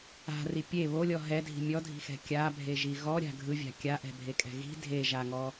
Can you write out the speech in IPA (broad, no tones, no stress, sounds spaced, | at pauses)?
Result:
a̤ r i pʲ e β o lʲ ɔ ɦ ɛ dʱ i̤ mʲ ɔ dʱ i̤ x ɛ̤ kʲ a bʱ e ʒ i ɣ ɔ ɾʲ a̤ ɡʱ ɯ vʲ a̤ kʲ a ʔ ɛ̤ bʱ e kʼ ɛ̤ ɣ i̤ dʱ e ʒ a ŋ ɔ